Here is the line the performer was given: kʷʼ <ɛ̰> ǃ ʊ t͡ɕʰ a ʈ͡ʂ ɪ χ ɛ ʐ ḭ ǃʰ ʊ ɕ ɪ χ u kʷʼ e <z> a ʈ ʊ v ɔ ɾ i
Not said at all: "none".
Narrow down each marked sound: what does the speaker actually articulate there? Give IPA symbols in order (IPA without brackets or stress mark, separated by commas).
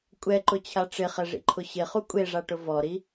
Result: ɛ, ʐ